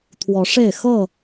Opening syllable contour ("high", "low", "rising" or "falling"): rising